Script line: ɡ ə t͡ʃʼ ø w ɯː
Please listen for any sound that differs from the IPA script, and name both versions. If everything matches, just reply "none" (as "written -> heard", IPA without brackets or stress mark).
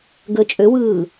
none